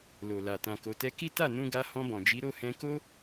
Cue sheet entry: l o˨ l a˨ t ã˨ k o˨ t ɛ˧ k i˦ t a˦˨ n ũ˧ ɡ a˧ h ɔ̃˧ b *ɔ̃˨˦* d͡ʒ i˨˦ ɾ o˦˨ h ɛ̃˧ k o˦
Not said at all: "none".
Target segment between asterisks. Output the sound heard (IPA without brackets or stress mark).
ɔ̃˨